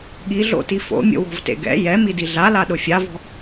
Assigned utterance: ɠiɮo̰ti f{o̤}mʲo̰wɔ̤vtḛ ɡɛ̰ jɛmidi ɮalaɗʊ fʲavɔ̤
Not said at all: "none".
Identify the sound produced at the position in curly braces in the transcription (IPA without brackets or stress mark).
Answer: o̰